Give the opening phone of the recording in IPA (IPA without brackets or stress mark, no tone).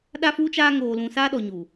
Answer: ɗ